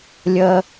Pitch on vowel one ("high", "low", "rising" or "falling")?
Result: low